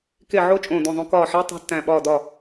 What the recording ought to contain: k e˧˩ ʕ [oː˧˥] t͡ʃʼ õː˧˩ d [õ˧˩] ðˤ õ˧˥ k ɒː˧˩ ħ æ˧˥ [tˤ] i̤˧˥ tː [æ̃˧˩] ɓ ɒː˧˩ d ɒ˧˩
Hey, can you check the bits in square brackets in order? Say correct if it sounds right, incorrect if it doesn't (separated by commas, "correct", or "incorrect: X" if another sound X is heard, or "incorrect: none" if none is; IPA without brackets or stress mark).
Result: incorrect: o˧˥, correct, correct, correct